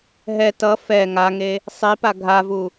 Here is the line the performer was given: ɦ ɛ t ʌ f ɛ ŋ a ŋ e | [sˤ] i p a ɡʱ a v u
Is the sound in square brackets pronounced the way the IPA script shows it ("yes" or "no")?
yes